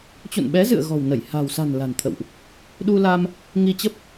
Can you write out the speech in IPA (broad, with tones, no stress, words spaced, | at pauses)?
t͡ɕṵ˧˨nɓɛ˨˦zɨ̰˧˨ə̯ ɣɔ̤˨˩wnə˧˩j ha̤˨˩w sa̤˨˩n la̤˨˩nt̪ʰə̰˧˨wʔ | ɗu˧la˧m | ŋi˧t͡ɕə˦˥p̚